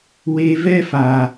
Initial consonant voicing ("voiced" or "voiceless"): voiced